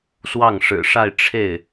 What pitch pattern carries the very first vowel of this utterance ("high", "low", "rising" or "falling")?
falling